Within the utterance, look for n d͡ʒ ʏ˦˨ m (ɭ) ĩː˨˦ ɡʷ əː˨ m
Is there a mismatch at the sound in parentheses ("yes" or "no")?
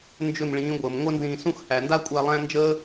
no